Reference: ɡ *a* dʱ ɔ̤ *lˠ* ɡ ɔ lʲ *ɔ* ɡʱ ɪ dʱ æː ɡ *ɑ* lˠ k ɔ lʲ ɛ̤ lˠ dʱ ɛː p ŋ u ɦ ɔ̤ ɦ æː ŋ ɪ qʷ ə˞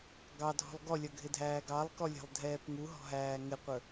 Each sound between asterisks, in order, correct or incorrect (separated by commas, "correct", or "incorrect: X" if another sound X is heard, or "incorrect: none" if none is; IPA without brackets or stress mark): incorrect: ɑ, correct, incorrect: ʌ, correct